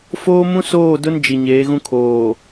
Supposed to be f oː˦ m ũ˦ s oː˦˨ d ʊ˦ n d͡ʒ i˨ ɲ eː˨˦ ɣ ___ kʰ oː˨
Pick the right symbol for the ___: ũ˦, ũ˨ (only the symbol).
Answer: ũ˦